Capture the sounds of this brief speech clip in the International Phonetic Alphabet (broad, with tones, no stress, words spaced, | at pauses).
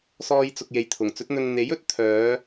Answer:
sɔː˧jt͡sʊ˨k̚ je˨jt̪ʰʊ˨˩ŋt͡sɵ˨˥t̚n̪ɵ˧n n̪e˨˥jɵ˨˥t̚ t̪ʰœː˨˧